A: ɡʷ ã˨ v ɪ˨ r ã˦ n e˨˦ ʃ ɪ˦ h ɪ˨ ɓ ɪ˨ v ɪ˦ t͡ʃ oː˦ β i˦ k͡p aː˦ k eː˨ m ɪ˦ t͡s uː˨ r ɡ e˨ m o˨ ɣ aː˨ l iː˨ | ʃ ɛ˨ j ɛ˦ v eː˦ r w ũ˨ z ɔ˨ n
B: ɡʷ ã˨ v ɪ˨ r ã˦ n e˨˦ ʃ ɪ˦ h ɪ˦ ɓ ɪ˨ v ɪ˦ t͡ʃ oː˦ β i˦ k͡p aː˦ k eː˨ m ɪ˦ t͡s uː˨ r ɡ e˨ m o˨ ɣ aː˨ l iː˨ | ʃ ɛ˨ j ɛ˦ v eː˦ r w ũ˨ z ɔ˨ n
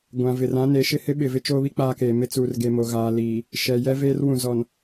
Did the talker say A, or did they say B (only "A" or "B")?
B